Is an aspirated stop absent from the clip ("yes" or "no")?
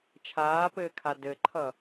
no